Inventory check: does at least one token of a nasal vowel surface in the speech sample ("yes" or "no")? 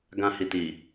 yes